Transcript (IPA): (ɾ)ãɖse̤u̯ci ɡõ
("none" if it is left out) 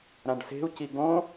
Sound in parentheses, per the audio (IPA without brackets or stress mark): ɾ